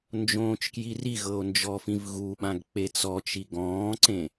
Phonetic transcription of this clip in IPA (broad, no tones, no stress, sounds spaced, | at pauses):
n d͡ʒ õː t͡ʃ k j i r i ɣ ɤ o̯ n d͡ʒ ɔ f ĩ v ɣ u ɓ ã ɡ k͡p e t͡s ɔ t͡ʃ i ɡ ɔ̃ː ǀ ẽ